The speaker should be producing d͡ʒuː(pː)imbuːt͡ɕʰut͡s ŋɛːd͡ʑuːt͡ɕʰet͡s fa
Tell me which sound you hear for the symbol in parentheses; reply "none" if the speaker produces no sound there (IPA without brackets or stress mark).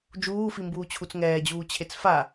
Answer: f